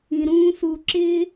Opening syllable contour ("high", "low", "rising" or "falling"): low